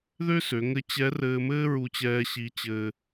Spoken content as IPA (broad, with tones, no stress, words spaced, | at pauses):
ðø˥sø˩˧ŋɘ˧˥t͡ɕɛ˧˥ rɘː˧mɘː˥ ɹu˧t͡ɕɛː˧ ɕi˧t͡ɕɘː˧